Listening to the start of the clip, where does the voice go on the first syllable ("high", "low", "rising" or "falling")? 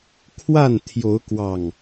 falling